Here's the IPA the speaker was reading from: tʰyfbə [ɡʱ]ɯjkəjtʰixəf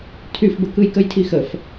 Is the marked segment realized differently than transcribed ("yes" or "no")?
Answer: yes